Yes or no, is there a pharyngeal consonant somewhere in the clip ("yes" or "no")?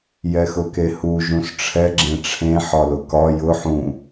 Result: yes